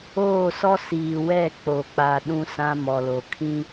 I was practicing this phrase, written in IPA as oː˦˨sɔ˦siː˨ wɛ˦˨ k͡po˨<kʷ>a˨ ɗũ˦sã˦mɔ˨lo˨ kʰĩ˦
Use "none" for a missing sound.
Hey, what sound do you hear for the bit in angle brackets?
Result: k͡p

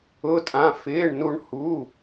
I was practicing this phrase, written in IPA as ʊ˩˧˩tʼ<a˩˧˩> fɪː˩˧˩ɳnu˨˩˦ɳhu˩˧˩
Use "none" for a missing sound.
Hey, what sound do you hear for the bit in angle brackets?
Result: ã˩˧˩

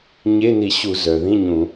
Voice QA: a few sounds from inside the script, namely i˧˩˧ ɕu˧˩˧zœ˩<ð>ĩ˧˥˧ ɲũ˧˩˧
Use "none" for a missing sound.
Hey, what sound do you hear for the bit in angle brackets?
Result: ð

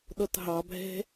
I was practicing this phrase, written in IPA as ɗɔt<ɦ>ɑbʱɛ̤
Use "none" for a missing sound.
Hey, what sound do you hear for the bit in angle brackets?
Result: ɦ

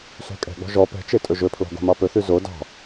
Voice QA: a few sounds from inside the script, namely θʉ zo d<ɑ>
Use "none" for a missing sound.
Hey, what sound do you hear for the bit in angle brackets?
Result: ɑ̤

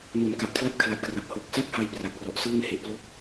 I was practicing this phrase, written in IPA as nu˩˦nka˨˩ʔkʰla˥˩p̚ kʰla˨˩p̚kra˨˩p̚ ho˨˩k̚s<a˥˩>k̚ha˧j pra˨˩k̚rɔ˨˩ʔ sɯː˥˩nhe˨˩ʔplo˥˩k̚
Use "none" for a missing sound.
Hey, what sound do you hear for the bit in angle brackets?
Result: a˥˩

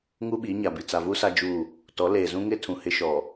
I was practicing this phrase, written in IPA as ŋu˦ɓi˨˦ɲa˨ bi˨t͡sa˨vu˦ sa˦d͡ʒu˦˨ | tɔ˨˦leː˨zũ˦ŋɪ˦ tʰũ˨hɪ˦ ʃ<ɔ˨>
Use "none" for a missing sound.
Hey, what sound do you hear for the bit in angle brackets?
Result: ɔ˨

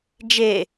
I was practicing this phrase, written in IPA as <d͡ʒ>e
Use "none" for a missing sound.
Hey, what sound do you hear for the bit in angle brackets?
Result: d͡ʒ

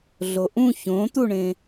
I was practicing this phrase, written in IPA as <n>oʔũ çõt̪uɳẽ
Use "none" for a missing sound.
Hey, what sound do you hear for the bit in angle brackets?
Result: ɮ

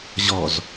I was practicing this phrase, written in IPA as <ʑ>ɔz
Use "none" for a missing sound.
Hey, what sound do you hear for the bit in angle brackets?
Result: ʑ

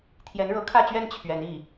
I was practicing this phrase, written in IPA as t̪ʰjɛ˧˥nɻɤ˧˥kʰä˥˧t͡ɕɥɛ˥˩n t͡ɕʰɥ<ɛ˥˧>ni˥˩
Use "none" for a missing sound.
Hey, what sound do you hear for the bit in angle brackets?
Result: ɛ˧˥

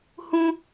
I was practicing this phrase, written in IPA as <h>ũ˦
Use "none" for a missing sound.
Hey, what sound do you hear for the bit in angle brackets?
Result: h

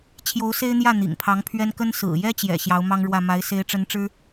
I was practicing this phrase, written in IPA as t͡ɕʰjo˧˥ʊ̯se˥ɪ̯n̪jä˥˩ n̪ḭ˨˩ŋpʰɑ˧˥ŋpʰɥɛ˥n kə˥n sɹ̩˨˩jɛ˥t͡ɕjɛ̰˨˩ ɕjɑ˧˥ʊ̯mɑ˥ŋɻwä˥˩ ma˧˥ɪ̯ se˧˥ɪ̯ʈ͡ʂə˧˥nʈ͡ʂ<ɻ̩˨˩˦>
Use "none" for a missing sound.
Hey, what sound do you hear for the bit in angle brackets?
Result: ɻ̩˥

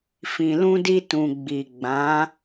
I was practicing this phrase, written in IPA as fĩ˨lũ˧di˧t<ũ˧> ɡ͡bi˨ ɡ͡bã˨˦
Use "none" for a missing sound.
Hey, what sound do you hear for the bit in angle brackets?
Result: ũ˨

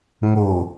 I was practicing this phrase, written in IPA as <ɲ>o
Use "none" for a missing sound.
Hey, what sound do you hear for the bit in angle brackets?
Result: ŋ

